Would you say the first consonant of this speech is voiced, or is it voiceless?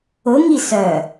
voiced